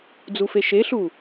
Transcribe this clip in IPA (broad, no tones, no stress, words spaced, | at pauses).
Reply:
d͡zufeʃeɬu